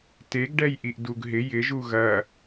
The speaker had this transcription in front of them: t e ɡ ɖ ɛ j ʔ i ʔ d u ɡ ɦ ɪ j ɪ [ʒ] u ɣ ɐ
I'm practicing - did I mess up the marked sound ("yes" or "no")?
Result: no